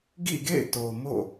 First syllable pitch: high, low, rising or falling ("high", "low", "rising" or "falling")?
falling